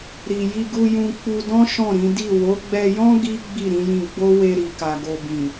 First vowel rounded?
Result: no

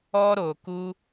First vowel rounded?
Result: yes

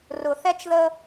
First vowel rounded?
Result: yes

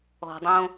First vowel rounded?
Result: yes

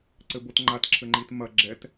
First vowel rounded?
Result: no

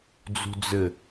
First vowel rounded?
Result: yes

